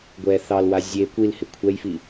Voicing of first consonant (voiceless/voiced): voiced